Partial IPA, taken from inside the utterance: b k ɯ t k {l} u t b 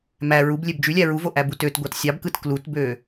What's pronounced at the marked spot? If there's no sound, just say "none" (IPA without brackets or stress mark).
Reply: l